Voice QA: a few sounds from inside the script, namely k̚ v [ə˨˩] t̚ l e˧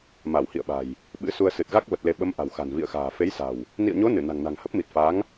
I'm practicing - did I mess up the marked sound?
no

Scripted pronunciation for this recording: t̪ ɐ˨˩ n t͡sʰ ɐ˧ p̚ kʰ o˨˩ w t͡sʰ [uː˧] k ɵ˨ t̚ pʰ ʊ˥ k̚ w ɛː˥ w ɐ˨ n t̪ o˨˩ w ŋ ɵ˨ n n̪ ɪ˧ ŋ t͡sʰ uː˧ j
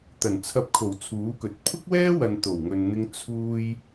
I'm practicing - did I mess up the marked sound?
yes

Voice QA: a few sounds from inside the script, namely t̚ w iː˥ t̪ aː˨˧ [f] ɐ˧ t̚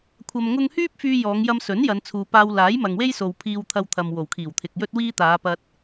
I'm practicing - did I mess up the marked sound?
yes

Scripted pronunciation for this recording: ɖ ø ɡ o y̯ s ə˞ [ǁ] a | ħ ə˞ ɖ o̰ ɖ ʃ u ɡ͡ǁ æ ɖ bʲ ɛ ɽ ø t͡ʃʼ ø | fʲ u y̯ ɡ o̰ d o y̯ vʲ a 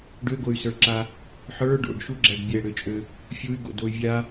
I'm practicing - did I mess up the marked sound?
no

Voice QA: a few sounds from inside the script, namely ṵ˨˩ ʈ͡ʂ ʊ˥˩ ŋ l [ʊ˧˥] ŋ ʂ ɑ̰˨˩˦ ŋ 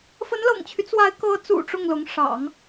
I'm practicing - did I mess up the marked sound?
no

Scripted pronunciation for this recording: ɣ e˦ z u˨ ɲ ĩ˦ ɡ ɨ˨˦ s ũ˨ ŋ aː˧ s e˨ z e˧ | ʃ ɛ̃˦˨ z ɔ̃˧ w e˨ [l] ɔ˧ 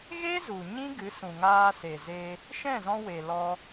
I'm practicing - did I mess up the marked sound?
no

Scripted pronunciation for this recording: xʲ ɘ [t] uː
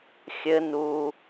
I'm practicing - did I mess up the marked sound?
yes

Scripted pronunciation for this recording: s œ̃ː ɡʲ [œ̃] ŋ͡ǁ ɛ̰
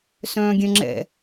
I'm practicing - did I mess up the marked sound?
no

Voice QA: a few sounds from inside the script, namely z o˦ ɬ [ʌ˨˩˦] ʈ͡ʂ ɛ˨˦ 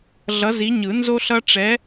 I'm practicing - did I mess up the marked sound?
yes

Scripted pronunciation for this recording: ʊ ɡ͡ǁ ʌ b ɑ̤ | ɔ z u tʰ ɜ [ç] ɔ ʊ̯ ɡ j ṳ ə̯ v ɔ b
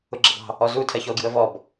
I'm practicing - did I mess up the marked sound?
no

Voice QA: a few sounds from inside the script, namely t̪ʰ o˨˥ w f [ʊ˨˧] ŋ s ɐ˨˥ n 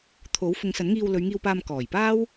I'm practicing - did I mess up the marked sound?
no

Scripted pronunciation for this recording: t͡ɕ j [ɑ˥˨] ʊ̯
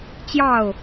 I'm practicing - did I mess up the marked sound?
no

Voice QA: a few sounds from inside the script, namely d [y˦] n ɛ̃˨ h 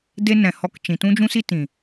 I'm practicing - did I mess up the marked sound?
yes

